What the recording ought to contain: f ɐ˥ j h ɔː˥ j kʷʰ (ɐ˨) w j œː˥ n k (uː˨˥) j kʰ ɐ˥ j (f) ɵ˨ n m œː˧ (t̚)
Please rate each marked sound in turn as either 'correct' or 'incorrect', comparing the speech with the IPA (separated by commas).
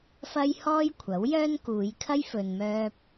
incorrect, incorrect, correct, incorrect